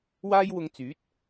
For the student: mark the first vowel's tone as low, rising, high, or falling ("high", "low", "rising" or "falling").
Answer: high